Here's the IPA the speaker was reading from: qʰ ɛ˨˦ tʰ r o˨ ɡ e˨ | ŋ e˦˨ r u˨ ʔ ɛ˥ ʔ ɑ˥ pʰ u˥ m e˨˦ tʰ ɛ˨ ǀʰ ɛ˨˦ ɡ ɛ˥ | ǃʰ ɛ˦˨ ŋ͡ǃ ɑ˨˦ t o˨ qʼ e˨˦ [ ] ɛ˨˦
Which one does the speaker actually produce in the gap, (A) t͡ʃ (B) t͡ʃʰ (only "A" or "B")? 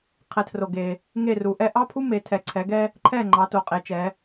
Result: A